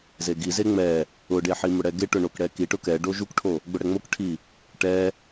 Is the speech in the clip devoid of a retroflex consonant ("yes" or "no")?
no